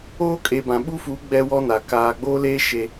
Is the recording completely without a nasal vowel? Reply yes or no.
no